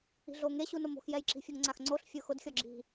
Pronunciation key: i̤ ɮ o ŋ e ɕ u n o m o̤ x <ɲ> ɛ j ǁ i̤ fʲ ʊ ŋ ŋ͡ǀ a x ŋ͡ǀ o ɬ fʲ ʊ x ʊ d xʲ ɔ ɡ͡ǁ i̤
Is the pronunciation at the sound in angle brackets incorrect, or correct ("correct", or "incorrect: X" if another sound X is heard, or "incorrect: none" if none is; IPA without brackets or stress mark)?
incorrect: j